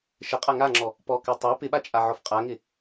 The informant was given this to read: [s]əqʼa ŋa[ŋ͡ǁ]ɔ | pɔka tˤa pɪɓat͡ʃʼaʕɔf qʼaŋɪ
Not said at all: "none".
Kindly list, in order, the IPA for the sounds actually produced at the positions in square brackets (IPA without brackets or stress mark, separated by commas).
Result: ʃ, ŋ͡ǁ